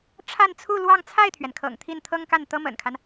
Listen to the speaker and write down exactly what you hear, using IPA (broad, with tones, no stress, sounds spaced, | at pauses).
ʈ͡ʂʰ a˥˧ n t͡sʰ u˥˧ l w ɑ˥˧ ŋ t͡sʰ a˥˩ ɪ̯ t̪ʰ ɥ ɛ˩ n kʰ ɤ̰˨˩ ŋ t̪ʰ i˥˩ n t̪ʰ ɤ˥ ŋ k a˥˩ n t̪ ɤ˥ m ə̰˨˩ n kʰ a˦ n